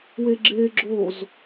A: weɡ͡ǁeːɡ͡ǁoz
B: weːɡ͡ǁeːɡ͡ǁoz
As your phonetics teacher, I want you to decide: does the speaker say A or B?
A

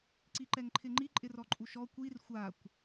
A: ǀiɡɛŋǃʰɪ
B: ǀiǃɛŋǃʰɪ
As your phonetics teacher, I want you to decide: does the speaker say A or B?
B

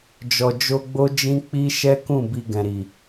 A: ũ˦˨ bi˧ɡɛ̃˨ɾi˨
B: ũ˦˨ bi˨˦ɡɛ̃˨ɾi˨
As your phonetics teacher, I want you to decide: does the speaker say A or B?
A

